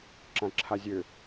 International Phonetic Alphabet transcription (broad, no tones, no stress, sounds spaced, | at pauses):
ǁ ã ǁʰ a zʲ ø